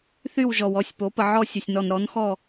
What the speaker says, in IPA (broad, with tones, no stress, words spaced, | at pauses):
θy˥˨wʒɔ˨wɔ˥˨sʲ po˩˥pə˨ ʕɔ˥˨sʲə˨sʲnɔ˨n ɾɔ˩˥nxɔ˥˨